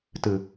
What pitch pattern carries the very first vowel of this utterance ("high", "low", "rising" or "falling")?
low